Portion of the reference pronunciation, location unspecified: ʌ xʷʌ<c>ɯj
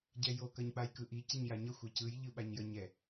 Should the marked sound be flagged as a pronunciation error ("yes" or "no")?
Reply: no